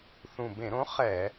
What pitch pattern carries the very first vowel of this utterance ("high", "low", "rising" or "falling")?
low